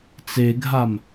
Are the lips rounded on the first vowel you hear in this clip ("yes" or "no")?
no